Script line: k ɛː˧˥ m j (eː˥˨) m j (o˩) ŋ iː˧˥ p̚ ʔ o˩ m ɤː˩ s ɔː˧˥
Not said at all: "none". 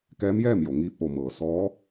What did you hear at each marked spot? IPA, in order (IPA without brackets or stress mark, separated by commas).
ɛː˥˨, o˩